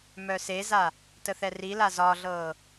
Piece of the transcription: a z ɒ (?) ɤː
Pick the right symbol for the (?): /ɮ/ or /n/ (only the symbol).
ɮ